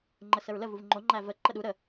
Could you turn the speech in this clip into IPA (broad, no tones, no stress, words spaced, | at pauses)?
ŋ͡ǃəsəɹlə vuvŋ͡ǃo ŋ͡ǃævə ǃəɗu ɾə